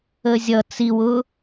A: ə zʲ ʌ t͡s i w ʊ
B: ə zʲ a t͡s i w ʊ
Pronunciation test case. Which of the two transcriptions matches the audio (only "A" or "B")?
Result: A